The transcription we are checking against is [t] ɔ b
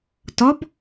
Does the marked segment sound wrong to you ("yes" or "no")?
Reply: no